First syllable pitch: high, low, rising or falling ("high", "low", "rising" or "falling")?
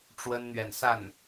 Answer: high